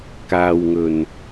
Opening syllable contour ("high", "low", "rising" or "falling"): low